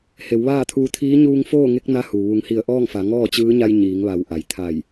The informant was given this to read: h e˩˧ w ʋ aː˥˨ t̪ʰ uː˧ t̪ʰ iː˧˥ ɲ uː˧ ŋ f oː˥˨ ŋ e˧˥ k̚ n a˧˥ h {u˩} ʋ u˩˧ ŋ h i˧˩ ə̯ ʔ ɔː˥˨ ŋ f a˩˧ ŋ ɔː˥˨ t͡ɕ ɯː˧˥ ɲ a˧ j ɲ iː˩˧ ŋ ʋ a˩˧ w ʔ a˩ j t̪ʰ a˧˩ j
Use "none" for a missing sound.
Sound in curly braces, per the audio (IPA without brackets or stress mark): u˩